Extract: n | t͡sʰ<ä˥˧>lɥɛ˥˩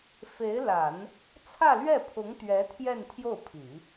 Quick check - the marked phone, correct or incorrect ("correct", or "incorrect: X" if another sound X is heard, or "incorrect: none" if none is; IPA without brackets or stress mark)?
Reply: correct